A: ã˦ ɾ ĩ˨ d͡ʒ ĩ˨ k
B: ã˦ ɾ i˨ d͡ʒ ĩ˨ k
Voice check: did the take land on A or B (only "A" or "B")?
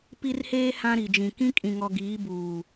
B